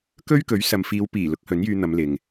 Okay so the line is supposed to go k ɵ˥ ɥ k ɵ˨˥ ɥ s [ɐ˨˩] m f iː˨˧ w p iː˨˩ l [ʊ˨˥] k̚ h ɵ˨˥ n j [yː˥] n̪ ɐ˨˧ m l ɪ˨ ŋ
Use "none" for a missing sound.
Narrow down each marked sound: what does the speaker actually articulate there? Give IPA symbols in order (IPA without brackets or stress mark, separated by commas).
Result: ɐ˨, ʊ˨˥, yː˧